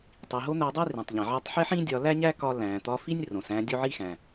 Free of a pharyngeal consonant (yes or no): no